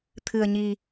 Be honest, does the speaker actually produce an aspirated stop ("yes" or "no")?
yes